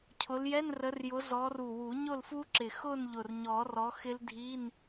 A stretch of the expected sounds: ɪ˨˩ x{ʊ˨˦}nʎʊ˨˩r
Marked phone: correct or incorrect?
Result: incorrect